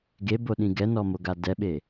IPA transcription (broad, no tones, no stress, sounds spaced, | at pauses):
ɡ e b o ɗ ĩ ɡ ɛ n ɔ m o ɡ a d ɛ ɓ e